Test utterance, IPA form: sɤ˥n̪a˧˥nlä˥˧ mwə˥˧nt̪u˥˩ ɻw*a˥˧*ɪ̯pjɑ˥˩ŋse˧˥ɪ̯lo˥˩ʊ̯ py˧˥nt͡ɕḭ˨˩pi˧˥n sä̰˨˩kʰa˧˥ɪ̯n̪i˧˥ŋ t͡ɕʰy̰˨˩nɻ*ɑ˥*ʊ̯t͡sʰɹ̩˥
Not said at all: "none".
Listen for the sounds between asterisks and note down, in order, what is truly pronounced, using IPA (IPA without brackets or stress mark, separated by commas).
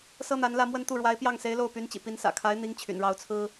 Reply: a˧˥, ɑ˥